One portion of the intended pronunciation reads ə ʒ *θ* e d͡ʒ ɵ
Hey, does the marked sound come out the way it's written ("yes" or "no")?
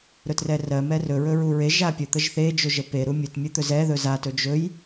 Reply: yes